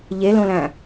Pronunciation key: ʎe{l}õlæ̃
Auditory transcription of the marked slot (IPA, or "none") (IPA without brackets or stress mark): l